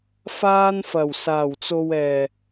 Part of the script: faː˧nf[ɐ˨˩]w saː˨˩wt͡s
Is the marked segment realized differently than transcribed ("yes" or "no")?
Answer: no